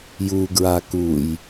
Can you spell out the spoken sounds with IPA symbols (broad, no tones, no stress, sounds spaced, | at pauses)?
j u ɡ ɹ a k u j